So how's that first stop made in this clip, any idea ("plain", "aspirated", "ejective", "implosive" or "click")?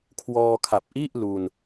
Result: aspirated